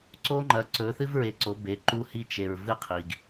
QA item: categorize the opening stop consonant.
click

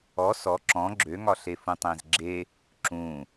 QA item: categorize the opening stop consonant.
click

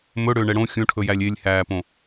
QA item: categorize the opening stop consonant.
aspirated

